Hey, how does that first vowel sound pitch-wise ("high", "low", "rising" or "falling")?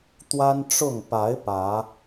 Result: high